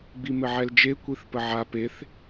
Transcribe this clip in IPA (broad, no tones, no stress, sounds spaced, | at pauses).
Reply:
ɡ͡b i m ɘ ʕ ɛ l d͡ʒ e kʷ i θ p ə ʕ a p e θ